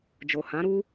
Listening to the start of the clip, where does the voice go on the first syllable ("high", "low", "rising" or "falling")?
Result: low